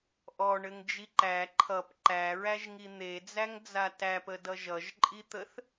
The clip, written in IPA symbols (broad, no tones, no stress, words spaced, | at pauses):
ʔɔɳɘŋd͡ʒi ǃæ ǃʰʌp ǃæɹæʒŋi n̪ed͡zæŋd͡za tæpədʌʒ ʌʒǃʼit̪əθ